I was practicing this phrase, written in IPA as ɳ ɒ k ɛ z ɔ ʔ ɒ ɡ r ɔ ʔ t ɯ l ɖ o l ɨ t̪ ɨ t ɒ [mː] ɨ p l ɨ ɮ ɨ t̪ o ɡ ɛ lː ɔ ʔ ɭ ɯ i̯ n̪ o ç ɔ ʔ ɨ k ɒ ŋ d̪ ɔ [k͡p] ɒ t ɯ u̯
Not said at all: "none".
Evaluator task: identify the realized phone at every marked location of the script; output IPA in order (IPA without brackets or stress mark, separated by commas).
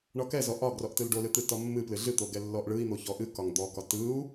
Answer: mː, k